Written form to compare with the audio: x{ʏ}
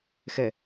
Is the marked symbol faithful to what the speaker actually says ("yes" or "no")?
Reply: no